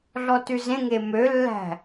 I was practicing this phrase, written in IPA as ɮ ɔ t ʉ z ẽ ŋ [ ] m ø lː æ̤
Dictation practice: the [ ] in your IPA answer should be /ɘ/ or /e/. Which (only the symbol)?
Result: e